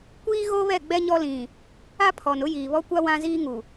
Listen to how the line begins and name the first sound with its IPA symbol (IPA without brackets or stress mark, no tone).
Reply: kʷ